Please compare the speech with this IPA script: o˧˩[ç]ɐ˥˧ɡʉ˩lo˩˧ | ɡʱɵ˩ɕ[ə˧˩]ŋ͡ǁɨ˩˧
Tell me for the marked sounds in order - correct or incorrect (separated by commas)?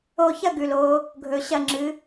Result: correct, incorrect